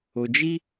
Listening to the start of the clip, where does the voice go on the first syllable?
low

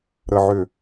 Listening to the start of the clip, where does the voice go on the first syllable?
low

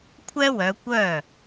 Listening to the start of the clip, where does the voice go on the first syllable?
high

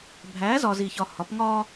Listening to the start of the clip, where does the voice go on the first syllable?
rising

